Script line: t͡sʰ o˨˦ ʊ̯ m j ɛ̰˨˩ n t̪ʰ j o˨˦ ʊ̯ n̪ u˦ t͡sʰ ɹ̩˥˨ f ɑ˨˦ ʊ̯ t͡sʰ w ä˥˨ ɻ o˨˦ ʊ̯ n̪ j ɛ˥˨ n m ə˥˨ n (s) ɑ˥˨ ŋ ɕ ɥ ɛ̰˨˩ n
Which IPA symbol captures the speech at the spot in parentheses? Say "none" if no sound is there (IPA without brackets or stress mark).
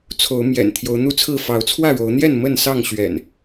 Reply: s